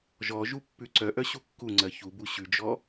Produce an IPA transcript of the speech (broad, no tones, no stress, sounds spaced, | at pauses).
ʒ ɔ ʒ u pː ʉ ǀ œ ʔ œ ɕ u kː u ŋ͡ǀ ɜ ç u b u ɕ ʉ d͡ʒ ɔ